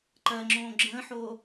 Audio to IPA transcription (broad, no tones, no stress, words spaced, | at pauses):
ǃɜŋ͡ǁõː ɡ͡ǁə̃ːħoː